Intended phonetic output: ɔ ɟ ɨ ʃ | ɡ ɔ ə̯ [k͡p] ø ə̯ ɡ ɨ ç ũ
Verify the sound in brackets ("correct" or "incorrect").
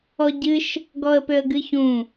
incorrect